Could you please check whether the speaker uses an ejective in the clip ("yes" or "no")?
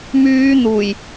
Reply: no